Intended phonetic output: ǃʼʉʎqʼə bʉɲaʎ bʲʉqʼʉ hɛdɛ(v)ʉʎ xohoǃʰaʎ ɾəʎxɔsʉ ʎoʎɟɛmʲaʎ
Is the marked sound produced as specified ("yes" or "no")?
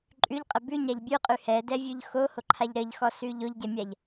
no